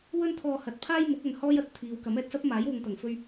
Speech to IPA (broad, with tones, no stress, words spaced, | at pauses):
wɵ˥nt̪ʰɔː˧hɐ˨˥t̚ pʰaː˥jmʊ˨˥k̚ɐ˨nhɔː˥j ɐ˥t̚t̪ʰiː˨˧wkɐ˨˥m ɛː˧t̚sɐ˥p̚maː˨˥j wʊ˨ŋt̪ɐ˨˩ŋfɵ˧ɥ